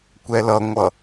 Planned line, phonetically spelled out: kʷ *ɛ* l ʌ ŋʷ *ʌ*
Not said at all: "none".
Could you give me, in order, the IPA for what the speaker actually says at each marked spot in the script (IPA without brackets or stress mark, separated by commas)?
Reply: ɛ, ʌ